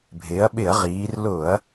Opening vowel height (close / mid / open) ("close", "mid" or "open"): close